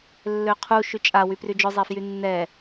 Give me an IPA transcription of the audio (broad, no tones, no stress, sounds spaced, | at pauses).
lː ø qʰ u ʃ y t͡ʃʼ a w y p r y d͡ʒ œ zˤ e f j y nː ɛ